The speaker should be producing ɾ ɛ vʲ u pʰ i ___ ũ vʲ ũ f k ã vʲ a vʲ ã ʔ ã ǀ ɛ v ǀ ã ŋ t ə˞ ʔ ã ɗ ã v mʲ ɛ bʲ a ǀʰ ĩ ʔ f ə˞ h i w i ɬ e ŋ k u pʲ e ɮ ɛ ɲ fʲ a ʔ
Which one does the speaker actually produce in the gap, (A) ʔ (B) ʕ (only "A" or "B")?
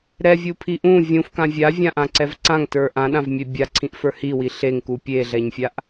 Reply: A